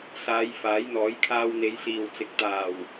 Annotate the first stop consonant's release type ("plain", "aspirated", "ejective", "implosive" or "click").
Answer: aspirated